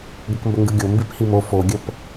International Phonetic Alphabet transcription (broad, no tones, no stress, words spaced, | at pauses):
ɡəkmbəŋɡɯɡʲo mbiphimo foɡʲəp